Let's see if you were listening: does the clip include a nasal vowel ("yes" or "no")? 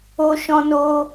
yes